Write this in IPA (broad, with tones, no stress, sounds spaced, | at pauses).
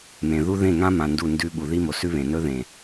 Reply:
m ẽ˨ ð u˦ ð ẽ˦˨ ŋ ã˦ m ã˧ n d u˦˨ n d ʉ˦ ɓ u˨ ð i˦ m o˨ s ʉ˦ β ẽ˨ n ɵ˦ ð ẽ˨